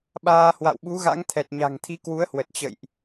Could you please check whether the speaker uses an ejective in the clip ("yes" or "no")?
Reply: no